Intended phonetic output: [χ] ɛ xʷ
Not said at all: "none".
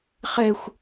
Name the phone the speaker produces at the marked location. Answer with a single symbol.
χ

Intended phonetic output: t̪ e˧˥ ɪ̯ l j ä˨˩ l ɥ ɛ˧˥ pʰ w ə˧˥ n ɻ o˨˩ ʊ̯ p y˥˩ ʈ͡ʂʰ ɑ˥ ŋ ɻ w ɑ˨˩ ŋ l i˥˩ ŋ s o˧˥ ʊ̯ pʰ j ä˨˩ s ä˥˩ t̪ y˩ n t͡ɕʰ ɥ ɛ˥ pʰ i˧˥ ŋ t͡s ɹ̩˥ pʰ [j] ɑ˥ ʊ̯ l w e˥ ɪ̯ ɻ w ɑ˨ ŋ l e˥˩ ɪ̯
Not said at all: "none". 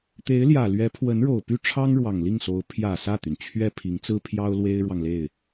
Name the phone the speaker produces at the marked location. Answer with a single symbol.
j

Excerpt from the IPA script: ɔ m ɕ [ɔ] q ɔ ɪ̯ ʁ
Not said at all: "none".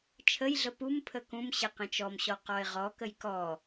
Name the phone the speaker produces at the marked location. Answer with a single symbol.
ɔ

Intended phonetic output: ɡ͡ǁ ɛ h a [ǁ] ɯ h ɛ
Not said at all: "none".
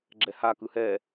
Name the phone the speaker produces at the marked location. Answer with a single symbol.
k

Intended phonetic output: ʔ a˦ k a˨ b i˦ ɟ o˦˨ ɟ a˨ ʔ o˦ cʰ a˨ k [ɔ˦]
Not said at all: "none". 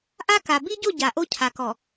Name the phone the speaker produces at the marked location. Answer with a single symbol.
ɔ˨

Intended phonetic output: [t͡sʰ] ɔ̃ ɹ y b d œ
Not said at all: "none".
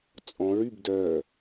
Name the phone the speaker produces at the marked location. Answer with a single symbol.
t͡sʼ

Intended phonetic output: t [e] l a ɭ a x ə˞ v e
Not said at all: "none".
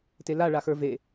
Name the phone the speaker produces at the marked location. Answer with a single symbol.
e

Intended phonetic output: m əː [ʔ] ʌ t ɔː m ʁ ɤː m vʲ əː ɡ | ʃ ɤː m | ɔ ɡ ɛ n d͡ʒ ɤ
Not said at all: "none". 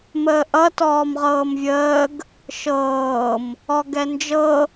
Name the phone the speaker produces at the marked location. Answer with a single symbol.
ʔ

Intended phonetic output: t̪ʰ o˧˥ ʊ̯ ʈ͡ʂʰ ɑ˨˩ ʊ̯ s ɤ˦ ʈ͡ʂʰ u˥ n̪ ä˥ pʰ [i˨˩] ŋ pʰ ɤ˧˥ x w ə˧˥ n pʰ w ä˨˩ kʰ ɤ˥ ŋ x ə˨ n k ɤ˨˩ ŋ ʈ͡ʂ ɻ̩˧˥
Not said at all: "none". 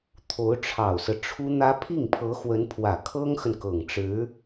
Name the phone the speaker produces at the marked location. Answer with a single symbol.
i˥˩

